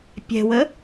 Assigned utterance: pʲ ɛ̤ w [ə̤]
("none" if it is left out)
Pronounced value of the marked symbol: ə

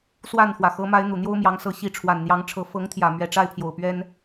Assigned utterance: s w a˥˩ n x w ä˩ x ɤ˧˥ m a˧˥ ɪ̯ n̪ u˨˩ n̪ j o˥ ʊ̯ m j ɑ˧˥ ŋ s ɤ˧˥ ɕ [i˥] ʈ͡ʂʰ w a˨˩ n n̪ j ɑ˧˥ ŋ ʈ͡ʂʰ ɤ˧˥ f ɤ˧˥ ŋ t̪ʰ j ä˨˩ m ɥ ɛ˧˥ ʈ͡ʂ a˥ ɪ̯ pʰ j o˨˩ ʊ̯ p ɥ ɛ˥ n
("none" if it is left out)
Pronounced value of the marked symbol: i˧˥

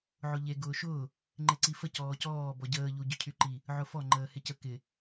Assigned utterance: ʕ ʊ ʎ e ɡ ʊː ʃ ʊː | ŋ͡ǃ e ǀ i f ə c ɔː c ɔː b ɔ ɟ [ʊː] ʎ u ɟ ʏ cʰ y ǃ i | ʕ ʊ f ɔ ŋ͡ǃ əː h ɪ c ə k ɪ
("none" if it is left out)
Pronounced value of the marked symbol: əː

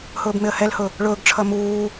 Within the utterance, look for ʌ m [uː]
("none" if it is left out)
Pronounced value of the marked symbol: uː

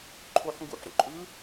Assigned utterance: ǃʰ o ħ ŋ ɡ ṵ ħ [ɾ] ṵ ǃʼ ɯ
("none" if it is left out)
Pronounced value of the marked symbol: ɾ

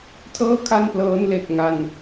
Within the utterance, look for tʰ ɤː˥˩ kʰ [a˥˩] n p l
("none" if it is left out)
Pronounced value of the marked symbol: a˥˩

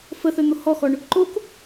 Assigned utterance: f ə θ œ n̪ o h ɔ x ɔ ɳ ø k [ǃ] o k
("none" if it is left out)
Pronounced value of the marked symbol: ǃ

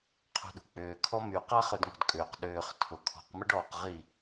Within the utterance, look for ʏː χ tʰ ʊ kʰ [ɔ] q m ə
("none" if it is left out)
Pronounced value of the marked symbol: ɔ̤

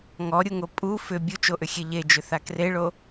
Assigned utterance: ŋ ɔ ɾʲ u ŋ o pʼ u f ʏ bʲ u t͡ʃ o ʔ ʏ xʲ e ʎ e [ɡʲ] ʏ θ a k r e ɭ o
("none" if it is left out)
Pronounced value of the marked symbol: d͡ʒ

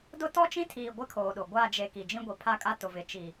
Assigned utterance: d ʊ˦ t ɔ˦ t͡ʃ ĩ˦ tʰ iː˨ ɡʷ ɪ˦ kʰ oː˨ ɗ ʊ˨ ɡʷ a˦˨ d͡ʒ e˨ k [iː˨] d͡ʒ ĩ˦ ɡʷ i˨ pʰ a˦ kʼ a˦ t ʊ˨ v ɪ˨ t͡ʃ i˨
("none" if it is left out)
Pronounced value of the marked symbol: i˨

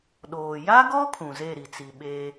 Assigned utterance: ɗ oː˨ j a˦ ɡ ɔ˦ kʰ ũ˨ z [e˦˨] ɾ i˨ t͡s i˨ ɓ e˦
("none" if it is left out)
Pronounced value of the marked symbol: e˦˨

